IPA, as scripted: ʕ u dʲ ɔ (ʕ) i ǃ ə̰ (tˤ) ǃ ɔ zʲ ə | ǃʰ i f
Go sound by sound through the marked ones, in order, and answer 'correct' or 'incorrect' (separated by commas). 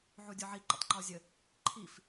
correct, correct